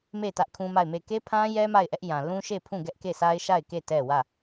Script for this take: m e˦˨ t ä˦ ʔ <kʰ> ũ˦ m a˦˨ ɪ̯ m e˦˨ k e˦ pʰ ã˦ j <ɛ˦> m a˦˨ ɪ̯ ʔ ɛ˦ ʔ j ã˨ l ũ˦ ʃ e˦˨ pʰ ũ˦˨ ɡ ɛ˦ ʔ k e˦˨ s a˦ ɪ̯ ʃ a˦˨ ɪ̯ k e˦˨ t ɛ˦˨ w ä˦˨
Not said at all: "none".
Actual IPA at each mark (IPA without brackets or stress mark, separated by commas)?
kʰ, ɛ˦